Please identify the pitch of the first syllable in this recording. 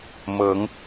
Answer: rising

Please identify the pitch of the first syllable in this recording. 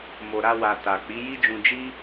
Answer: low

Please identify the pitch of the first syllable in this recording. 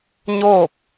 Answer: falling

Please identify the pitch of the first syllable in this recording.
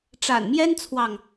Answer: low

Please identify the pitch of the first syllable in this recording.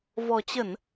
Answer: low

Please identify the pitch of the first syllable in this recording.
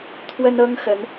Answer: high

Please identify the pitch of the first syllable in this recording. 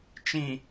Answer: low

